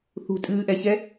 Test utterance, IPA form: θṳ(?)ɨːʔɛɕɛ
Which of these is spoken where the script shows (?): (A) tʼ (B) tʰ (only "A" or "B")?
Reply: A